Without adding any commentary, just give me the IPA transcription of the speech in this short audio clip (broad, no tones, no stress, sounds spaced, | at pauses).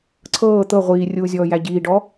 ǀʰ ɤː t̪ ɤ ʁʷ iː rʲ uː zʲ ɔː j æ ɟ iː ɖ ɔ